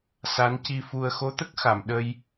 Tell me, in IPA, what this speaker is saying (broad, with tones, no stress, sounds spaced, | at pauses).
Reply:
s a˧˥ n c i˧ f u˧ ə̯ x o˧˥ t̪ ə˦˥ k̚ x a˨˩˨ m ɗ ə˧ j